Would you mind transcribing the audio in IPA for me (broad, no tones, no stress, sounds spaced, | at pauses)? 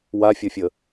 w a fʲ ʌ fʲ ə